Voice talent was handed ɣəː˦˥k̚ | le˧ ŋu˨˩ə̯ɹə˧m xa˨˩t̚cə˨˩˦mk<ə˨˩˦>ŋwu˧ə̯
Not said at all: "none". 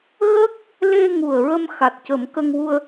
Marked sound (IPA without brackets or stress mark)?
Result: ə˧